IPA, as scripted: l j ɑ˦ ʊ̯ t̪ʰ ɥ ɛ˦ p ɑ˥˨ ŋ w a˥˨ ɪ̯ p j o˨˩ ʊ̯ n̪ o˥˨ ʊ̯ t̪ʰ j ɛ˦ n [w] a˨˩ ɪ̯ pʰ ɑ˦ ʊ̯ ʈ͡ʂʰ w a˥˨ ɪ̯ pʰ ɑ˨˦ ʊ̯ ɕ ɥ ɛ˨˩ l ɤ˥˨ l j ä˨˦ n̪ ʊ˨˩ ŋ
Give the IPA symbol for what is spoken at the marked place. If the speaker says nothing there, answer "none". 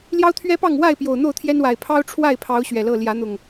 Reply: w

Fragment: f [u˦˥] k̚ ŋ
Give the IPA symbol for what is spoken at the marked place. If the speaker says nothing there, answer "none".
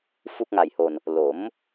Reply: u˦˥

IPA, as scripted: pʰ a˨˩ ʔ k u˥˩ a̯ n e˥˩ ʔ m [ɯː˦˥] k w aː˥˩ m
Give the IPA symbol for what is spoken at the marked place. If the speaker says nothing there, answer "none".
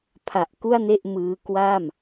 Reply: ɯː˦˥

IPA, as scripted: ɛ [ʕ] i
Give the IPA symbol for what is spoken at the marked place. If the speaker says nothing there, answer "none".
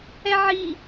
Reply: ʕ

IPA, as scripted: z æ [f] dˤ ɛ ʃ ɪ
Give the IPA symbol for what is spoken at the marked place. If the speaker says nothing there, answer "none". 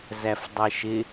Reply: f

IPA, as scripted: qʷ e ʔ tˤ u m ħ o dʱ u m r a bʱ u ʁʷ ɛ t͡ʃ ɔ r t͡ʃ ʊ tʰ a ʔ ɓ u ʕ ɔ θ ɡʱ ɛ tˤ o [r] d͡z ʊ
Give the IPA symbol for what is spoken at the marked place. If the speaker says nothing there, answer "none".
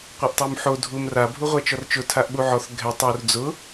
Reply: r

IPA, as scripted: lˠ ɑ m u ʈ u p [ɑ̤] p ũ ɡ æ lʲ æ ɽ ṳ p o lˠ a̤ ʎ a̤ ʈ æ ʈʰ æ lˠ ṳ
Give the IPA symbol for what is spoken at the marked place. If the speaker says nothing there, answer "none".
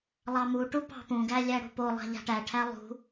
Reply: ɑ̤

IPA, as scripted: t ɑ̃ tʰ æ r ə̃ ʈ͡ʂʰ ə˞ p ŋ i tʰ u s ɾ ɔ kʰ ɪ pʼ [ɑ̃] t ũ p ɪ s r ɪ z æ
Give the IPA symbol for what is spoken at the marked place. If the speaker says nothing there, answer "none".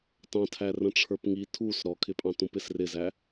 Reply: ɑ̃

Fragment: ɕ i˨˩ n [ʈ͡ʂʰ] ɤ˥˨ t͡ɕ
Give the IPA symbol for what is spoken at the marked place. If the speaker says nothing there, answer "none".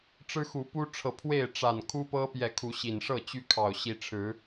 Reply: ʂ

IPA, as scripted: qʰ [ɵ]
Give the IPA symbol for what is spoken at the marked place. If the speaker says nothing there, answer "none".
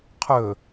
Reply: ɵ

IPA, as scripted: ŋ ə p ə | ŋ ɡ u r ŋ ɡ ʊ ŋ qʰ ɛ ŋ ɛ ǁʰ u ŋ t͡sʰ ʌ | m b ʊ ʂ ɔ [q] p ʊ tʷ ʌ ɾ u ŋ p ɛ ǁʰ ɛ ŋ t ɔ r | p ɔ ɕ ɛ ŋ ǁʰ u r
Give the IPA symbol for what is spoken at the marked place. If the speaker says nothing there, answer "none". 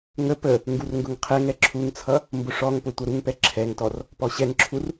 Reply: ŋ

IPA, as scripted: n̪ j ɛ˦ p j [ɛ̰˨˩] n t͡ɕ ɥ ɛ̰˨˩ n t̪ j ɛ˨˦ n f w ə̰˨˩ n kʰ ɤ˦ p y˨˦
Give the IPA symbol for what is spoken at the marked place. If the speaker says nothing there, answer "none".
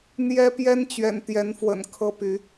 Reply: ɛ˦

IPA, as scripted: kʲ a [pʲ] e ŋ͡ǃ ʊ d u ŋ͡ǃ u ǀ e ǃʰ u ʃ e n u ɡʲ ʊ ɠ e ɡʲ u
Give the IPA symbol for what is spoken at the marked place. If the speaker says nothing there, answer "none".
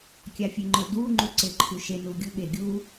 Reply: fʲ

